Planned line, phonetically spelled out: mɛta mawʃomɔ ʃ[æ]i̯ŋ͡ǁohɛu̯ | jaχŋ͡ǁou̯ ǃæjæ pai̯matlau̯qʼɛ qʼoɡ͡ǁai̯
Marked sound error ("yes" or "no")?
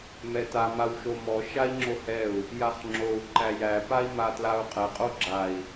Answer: yes